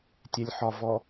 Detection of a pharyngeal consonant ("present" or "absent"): present